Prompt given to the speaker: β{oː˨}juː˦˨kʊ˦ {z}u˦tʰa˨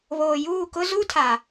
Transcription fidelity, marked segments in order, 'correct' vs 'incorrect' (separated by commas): correct, correct